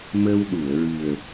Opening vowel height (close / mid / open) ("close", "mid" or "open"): mid